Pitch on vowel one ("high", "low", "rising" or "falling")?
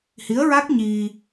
rising